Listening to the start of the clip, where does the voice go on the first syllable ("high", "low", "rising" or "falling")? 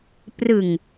low